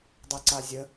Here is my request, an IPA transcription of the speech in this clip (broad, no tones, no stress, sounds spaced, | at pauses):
dˤ e ǀ a zʲ ə